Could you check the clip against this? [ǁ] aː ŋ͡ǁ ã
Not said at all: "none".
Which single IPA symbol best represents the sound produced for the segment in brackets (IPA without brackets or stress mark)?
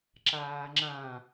ǁ